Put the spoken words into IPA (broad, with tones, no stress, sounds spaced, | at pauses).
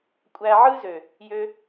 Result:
kʷʼ æ˧ ʕ ɯ˦ z ø˨ | j ø˦